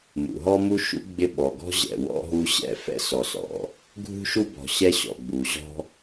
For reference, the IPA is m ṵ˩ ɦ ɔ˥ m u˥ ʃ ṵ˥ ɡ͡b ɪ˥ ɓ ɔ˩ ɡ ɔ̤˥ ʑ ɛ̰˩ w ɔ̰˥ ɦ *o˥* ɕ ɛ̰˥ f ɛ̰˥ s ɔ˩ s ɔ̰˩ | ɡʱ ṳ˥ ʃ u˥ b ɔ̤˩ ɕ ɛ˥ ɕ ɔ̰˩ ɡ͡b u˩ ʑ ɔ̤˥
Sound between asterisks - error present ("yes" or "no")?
yes